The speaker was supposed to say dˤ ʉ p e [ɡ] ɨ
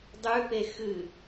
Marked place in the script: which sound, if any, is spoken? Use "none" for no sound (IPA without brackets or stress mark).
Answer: x